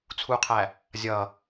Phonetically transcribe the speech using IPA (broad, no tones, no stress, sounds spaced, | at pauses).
t͡sʰ u qʰ æ | zʲ ʌ